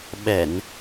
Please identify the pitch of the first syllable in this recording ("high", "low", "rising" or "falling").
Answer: low